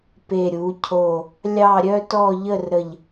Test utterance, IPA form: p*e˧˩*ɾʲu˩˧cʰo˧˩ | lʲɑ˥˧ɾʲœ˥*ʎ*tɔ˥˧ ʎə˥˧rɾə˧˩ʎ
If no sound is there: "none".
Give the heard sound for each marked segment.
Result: e˧˩, none

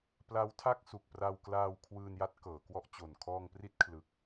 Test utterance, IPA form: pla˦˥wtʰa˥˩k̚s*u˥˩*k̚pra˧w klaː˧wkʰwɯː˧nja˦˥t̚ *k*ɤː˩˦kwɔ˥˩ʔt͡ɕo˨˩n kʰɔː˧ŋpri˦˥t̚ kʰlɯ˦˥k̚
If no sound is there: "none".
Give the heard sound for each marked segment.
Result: u˨˩, k

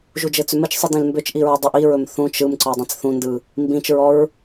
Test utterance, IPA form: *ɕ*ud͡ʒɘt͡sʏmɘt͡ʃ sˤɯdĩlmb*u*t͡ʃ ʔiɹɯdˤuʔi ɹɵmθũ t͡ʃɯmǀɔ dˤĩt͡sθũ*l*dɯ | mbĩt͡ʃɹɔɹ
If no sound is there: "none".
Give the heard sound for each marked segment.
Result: ʒ, ʏ, n

